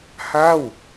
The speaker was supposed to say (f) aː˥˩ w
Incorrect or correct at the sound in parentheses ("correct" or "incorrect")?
incorrect